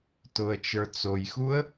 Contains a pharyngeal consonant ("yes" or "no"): no